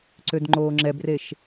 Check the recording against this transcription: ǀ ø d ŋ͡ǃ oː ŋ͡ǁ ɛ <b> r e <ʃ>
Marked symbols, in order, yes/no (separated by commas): yes, yes